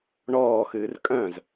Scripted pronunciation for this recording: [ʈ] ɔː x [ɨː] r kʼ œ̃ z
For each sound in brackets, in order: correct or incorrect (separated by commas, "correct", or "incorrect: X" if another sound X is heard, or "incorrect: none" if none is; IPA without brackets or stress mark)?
incorrect: ɳ, correct